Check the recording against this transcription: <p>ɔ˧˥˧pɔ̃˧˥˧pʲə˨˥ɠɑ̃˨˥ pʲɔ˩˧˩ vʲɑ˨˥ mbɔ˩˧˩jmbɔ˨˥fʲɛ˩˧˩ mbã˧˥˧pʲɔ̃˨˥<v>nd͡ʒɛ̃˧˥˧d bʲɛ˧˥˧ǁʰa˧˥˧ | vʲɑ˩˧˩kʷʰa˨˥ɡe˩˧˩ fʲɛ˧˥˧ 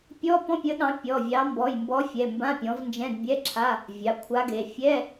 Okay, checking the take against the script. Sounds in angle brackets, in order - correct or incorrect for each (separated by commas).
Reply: incorrect, correct